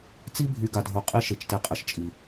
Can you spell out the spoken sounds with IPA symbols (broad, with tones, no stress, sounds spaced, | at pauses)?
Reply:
t͡s i˦ bʱ y˨ ɡ a˨ dʱ o˨ qʼ i˦ ʃ e˨ t͡ʃ t e˨ qʼ ə˨ ʃ t͡ʃʼ i˨